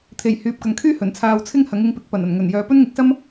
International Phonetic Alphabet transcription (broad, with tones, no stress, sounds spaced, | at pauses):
t̪ʰ e˨˩ j h yː˨ p̚ k ɐ˨ ŋ kʰ yː˥ h ɵ˨˩ n t͡sʰ aː˧ w t͡sʰ ɪ˥ ŋ h ɐ˨˥ ŋ ɪ˨˥ ŋ p ɪ˨˥ k̚ p ɐ˨˩ n ɐ˨˩ n ŋ ɵ˨˩ n j œː˨ p ɵ˥ n ŋ ɪ˨˥ k̚ s ɐ˥ m